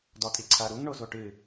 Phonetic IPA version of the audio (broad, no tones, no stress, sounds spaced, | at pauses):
d ɔ tʼ i ǀʰ ɐ ɾ u ŋ ɳ o z o ʈ ɨ